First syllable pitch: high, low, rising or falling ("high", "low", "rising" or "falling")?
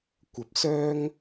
rising